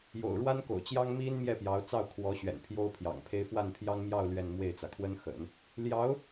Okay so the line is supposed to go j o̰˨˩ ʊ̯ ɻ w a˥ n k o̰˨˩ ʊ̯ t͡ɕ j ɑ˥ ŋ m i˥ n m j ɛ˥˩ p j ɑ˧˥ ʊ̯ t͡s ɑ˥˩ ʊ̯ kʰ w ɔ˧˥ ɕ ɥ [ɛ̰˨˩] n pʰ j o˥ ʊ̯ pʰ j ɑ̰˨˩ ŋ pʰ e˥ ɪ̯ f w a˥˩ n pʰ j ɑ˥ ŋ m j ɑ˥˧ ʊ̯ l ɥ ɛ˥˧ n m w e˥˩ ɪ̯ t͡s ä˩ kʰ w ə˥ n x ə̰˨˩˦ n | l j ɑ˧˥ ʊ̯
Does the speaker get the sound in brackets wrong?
no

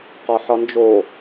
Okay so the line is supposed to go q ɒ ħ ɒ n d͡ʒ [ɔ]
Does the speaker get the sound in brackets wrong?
yes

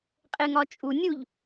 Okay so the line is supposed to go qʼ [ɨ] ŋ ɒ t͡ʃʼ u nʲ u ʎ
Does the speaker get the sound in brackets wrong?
yes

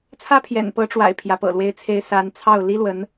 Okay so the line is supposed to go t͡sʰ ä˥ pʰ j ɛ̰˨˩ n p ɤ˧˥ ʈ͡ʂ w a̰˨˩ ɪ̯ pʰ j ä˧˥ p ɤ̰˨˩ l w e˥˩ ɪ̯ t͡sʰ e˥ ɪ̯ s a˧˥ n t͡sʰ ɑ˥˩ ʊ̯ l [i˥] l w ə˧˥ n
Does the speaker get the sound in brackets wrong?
no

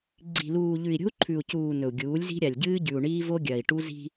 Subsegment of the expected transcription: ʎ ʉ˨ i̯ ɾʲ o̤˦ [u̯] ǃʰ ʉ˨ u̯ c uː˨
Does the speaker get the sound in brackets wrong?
no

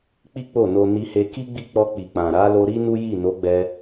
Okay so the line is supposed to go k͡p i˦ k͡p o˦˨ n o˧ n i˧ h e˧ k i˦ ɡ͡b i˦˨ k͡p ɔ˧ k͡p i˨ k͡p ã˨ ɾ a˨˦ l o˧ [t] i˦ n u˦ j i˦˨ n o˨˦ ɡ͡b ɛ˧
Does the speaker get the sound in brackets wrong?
yes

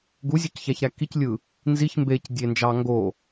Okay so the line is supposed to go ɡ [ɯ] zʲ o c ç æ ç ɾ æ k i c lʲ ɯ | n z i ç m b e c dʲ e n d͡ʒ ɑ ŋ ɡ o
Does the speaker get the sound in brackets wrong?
yes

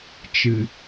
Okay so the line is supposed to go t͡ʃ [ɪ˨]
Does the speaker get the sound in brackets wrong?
yes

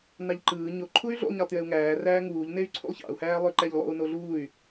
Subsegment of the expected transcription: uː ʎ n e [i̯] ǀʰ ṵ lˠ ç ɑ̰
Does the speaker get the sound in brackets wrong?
yes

